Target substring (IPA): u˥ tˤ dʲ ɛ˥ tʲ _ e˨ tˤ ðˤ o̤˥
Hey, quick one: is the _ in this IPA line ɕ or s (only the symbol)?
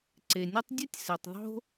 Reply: s